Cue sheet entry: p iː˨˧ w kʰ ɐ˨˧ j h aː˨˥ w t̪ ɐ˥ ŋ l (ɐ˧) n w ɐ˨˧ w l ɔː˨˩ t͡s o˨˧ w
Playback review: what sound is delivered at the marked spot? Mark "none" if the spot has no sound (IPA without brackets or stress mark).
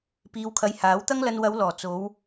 ɐ˧